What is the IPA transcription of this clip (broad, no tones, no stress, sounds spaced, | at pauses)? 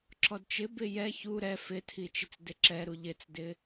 ǁ ɔ d t͡ʃ ɪ b ɪ j ɛ ç u ɾ ɛ f ɪ tʰ i t͡ʃ ɪ t͡s d ɪ ǁ ɛ ɾ u ʎ ɪ t͡s d ɪ